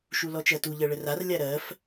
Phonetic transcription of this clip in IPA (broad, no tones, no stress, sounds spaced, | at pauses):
ʃ u l ɔ t͡ʃ ɜ t u ʎ ɜ ɭ ə r a r lʲ a ɾ ɜ f